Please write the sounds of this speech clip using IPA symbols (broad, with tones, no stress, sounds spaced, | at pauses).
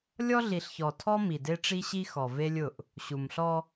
lʲ ɔ˦ ɮ i˨ ɬ ç ɔ˨ tʰ ɔ˦ m i˨ d e˦ ʈ͡ʂ i˦ ɕ i˦ x ɔ˨ v e˦ lʲ ʊ˦˨ ʔ | ɕ u˨ m ɬ ɔ˦